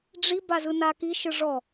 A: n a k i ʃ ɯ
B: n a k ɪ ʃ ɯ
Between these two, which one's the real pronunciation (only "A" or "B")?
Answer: A